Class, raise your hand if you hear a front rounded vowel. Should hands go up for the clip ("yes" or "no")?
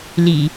no